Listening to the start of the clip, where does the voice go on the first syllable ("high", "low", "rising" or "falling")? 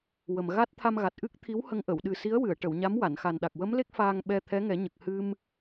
low